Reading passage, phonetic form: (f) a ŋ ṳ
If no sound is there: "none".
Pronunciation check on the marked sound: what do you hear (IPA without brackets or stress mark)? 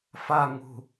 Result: f